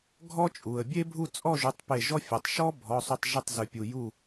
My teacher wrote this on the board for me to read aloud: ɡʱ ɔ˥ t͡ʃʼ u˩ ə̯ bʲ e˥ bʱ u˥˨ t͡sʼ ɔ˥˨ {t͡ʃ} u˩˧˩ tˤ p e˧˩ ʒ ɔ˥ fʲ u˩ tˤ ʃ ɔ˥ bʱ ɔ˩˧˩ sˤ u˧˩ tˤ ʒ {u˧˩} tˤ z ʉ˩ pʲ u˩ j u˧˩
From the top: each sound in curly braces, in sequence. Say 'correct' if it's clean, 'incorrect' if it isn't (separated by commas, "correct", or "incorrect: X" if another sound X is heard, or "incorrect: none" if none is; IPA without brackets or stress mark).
incorrect: ʒ, incorrect: ʉ˧˩